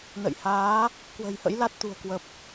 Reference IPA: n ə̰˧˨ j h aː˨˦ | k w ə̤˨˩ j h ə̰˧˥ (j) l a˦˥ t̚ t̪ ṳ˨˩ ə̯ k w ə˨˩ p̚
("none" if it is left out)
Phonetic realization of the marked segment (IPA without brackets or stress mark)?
j